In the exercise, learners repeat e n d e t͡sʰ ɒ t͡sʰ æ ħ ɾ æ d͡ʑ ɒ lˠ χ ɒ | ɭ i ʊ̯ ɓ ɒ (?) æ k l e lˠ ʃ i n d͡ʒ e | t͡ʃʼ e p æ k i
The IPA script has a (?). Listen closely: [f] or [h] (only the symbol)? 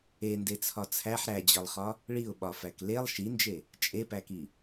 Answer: f